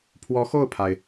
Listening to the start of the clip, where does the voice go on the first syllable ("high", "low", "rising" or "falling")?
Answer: rising